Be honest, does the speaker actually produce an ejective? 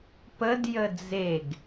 no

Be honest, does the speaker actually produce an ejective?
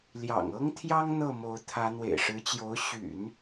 no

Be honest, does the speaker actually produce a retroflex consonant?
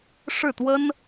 yes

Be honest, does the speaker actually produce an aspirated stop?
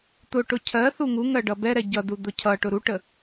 yes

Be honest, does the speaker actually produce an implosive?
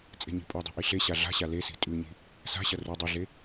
no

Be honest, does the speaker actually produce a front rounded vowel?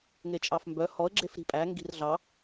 yes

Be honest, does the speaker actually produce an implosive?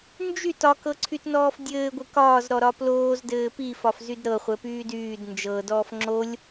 no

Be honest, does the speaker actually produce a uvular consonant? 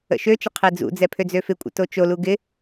yes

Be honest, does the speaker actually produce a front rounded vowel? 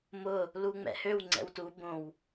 yes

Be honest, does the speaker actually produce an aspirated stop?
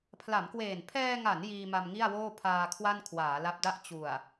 yes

